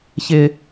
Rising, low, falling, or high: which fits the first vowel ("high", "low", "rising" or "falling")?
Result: high